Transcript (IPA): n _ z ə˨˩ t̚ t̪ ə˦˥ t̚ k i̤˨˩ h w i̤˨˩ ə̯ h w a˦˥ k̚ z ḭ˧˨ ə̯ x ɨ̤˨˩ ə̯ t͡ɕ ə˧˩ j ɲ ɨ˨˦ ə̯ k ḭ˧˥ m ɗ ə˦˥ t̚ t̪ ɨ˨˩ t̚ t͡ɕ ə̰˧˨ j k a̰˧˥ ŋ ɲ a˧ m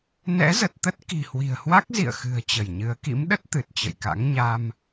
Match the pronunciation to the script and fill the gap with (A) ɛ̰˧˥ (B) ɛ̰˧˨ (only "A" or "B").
A